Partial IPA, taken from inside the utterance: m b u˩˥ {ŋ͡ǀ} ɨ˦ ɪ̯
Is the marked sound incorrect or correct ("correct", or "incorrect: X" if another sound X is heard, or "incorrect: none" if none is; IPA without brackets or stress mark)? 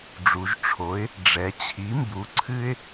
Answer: incorrect: ǀʰ